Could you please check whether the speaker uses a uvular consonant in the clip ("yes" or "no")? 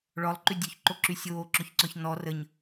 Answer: no